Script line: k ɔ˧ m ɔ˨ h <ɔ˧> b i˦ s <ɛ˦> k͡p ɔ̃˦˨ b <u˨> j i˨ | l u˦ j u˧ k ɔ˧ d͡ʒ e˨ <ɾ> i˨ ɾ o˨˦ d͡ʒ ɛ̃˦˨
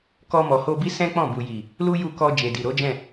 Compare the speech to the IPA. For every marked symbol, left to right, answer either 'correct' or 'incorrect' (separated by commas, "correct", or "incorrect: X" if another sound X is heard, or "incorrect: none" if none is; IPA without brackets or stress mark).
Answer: incorrect: o˧, incorrect: ɛ̃˦, correct, incorrect: d